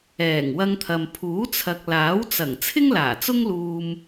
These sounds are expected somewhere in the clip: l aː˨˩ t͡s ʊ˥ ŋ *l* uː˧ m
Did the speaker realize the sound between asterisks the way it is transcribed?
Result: yes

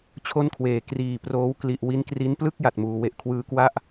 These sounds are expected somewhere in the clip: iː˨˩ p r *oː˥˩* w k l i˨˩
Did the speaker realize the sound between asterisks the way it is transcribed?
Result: no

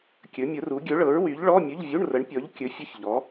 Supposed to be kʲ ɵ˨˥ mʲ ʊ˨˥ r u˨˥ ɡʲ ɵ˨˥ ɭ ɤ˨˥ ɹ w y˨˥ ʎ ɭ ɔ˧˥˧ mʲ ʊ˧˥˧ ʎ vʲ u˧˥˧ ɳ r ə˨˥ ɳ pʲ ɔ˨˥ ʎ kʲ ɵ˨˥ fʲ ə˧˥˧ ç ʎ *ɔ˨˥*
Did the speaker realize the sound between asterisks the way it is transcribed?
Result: yes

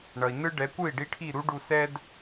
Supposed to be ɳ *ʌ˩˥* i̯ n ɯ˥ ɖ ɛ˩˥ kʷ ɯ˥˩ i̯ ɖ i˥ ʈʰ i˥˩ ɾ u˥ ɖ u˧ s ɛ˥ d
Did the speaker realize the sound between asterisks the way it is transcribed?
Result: no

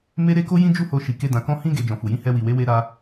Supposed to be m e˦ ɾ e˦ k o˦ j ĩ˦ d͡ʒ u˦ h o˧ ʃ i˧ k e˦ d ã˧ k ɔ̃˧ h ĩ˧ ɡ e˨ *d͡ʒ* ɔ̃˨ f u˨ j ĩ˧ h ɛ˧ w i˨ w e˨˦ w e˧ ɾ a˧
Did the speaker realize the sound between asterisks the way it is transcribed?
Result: yes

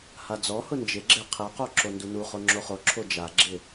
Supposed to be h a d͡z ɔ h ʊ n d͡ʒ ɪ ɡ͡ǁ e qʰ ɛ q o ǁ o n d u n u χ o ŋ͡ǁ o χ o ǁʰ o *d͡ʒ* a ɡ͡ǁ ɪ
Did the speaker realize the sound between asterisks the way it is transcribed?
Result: yes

